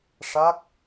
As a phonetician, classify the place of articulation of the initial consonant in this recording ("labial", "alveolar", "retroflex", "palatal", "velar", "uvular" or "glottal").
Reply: retroflex